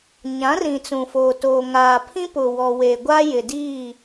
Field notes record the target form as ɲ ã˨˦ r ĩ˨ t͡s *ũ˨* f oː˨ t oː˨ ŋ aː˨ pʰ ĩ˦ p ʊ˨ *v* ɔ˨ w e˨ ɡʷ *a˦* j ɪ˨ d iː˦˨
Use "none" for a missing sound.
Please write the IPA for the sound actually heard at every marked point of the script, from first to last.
ũ˨, w, a˦

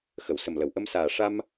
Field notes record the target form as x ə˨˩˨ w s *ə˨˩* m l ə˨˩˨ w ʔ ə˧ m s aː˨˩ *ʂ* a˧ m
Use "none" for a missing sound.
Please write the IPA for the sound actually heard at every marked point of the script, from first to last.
ə˨˩, ʂ

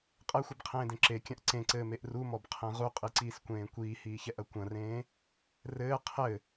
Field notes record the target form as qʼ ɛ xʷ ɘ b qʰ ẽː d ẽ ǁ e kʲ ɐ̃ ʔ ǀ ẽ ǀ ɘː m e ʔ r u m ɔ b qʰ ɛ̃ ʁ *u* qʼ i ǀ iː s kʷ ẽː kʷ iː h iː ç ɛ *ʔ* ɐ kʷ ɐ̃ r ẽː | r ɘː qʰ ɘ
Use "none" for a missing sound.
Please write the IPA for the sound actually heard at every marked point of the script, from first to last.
u, ʔ

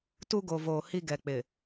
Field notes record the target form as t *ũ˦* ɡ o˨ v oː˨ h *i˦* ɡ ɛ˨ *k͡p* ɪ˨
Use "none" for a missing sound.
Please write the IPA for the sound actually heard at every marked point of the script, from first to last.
u˦, i˦, k͡p

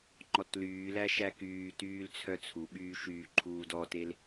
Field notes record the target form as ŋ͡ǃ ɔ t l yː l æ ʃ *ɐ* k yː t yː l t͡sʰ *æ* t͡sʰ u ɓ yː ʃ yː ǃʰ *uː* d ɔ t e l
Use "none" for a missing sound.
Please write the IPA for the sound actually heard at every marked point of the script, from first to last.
æ, œ, uː

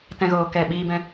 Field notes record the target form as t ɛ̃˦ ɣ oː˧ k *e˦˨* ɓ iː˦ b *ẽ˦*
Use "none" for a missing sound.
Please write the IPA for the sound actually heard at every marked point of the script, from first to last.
ɛ˦˨, ɛ̃˦

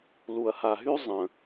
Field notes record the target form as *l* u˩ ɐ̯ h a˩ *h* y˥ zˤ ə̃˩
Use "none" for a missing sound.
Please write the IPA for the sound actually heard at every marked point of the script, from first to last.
l, ɦ

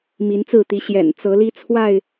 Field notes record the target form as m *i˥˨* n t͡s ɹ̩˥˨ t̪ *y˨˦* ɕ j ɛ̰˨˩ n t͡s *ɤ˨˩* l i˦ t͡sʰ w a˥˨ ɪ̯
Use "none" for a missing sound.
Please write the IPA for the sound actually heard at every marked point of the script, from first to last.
i˨˦, i˨˦, ɤ˨˦

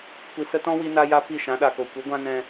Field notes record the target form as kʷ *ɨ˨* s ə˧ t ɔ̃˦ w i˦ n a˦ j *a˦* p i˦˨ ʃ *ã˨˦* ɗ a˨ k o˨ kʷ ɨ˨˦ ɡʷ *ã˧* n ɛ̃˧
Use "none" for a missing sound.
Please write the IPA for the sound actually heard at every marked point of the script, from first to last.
i˨, a˦, ã˨˦, ã˦

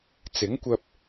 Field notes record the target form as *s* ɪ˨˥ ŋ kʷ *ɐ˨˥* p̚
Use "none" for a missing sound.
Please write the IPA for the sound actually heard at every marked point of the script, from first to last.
t͡s, ɐ˧

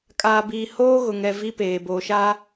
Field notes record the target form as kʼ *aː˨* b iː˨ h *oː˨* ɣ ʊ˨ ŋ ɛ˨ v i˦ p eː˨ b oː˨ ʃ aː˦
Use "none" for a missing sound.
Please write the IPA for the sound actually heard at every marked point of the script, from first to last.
aː˨, oː˦

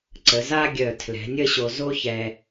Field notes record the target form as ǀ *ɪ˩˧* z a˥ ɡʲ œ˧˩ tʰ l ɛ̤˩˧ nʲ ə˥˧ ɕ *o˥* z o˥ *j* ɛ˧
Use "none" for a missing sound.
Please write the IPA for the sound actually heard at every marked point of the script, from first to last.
ə˩˧, o˧, ç

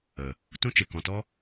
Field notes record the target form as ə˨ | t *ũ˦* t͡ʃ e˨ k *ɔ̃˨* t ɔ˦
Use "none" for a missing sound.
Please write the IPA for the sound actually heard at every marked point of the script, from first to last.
ũ˦, ɔ̃˨

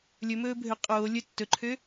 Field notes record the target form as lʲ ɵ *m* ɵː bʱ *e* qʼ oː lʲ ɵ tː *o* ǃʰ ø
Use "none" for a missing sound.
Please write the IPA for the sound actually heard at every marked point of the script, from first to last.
m, ø, ɵ

